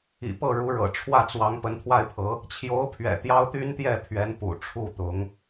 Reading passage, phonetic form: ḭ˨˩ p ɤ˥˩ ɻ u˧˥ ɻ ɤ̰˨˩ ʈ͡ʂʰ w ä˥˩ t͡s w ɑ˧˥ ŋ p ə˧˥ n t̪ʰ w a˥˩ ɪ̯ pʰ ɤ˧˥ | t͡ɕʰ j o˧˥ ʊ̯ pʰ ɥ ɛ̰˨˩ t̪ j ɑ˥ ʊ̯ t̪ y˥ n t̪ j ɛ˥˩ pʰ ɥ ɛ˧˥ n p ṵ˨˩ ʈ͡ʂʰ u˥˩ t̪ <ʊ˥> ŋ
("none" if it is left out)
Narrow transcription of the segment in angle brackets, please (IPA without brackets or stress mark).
ʊ˧˥